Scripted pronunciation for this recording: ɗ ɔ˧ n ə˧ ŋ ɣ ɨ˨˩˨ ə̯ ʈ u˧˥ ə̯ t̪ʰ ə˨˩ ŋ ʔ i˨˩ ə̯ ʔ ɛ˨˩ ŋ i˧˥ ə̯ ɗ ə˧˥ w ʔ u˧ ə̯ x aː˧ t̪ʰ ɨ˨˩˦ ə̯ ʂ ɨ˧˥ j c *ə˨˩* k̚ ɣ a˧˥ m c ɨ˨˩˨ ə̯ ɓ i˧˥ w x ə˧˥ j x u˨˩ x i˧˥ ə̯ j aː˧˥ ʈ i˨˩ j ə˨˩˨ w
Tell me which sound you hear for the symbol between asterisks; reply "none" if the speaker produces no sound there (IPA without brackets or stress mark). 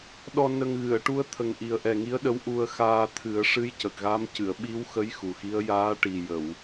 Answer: ə˨˩